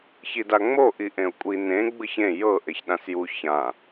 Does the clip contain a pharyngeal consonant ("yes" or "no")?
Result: no